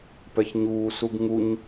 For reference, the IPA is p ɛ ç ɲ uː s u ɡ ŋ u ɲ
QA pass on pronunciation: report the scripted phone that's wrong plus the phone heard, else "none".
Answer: none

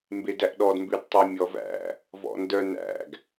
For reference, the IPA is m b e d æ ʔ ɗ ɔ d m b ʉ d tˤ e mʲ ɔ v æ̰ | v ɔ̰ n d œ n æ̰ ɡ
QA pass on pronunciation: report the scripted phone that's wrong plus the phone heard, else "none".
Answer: none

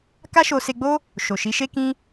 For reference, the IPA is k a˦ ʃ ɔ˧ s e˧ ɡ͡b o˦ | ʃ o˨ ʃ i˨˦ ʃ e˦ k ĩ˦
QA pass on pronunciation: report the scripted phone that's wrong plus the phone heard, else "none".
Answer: ɔ˧ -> o˧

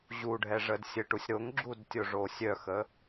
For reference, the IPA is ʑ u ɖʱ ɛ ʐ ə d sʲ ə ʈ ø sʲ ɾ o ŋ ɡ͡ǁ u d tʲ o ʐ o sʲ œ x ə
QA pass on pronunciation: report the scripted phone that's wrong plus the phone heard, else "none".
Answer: ø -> u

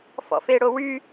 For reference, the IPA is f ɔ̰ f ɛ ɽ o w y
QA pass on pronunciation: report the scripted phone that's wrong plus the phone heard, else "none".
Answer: ɛ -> e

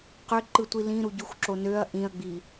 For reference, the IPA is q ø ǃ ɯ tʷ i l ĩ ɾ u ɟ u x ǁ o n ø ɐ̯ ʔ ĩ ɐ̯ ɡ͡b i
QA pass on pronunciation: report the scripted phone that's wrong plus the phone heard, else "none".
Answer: none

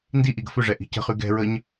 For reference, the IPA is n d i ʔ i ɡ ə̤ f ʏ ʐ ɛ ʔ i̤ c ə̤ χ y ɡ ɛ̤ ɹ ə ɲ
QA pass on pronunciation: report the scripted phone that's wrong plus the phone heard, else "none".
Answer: none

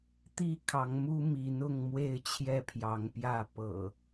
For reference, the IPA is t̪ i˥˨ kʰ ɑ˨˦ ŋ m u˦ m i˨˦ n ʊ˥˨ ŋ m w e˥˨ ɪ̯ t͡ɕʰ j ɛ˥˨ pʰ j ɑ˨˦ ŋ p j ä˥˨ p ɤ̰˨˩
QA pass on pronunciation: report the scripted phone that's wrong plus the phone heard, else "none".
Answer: none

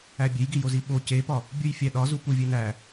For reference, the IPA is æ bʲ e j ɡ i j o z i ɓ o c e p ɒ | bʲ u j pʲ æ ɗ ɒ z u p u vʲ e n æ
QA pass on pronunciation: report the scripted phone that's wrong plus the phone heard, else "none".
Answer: pʲ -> fʲ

